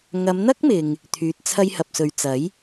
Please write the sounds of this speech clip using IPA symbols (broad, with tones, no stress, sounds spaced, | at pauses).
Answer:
ŋ ɐ˨˧ m n̪ ɐ˥ k̚ m ɪ˨ ŋ | t̪ʰ yː˨ t̚ t͡sʰ ɐ˧ j h ɐ˨ p̚ s ɵ˨ ɥ t͡s ɐ˨˥ j